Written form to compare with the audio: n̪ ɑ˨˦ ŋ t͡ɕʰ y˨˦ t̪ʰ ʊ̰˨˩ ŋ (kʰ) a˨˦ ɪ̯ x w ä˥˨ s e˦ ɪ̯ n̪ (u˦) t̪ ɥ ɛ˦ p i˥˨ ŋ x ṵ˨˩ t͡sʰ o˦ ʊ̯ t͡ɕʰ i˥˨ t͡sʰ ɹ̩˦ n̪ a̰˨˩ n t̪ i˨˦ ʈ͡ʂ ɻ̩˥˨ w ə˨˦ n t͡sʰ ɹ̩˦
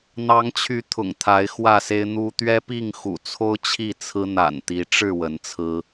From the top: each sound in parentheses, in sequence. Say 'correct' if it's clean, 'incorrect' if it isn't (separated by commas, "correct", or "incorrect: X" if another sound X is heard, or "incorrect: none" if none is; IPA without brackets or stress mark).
incorrect: t̪ʰ, correct